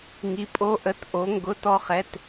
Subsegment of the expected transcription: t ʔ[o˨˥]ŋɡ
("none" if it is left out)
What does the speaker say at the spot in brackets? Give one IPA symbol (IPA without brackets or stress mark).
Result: o˨˥